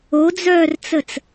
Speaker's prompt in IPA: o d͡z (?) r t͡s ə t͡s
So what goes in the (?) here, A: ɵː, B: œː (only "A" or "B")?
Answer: B